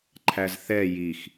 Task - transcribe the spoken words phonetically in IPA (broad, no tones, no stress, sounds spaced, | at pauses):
ǃʰ æ z θ ɛ j i x